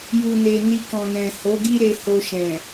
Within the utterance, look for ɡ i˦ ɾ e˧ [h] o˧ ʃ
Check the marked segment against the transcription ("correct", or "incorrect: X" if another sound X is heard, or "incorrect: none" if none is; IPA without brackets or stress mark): correct